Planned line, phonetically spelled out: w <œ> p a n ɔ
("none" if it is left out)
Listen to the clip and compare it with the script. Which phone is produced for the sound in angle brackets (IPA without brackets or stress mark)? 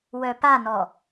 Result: œ